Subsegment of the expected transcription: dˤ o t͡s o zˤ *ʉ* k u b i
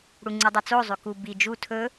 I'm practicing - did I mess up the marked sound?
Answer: no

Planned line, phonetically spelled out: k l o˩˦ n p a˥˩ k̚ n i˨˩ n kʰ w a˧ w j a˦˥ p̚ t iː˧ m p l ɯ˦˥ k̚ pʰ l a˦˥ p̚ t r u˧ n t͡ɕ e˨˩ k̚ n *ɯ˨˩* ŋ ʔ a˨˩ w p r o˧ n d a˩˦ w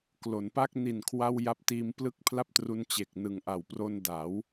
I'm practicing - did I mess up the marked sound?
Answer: no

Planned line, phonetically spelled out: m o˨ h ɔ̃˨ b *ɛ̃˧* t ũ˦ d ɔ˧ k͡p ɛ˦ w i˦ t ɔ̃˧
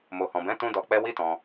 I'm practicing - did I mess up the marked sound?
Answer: yes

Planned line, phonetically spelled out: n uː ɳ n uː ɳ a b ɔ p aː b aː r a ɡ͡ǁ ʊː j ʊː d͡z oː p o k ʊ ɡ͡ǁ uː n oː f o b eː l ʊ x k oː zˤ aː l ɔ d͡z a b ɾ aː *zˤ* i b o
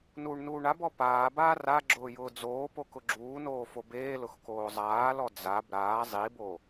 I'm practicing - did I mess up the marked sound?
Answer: no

